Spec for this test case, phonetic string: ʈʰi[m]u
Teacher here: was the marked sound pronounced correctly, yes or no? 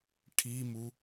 yes